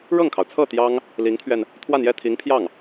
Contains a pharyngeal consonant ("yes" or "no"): no